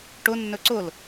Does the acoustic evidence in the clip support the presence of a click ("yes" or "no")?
yes